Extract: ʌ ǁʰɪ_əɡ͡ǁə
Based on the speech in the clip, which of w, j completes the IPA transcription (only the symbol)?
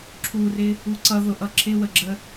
w